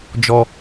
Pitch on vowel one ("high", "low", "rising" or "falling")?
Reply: low